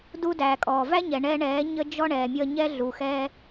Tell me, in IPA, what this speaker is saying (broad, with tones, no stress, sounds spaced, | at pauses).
d u˧ d æː˨ kʼ ɔː˨ v æ˦ ɲ ɛ˨ ɳ ɛ˧ ɳ ɛː˨˦ ɲ ə˦ d͡ʒ ɔ˦ ɳ ɛː˨ mʲ ʌː˧ ɲ ɛ˦ ɮ u˨ x ɛː˦